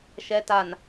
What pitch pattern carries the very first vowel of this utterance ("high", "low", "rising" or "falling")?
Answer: low